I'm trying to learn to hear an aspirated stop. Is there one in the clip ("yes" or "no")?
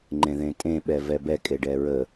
no